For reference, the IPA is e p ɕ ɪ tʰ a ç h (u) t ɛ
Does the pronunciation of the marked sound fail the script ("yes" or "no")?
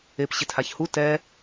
no